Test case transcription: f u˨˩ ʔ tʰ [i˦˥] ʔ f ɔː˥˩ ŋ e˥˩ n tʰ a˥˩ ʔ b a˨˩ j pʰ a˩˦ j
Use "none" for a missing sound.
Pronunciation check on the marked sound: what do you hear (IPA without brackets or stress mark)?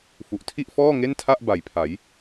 i˥˩